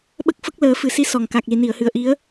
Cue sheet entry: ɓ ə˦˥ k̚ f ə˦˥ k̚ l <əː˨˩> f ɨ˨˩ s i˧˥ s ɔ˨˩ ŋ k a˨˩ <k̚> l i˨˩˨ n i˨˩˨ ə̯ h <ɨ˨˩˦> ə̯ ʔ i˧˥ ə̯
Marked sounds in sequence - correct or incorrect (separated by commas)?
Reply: incorrect, correct, incorrect